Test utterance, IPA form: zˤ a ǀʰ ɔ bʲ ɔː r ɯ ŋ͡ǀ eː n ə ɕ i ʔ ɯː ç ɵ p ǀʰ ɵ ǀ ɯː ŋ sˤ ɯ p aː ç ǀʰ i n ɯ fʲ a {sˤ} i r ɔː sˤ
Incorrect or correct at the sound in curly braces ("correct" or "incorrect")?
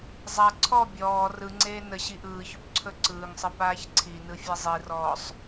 incorrect